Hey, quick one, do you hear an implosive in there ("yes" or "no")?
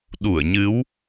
yes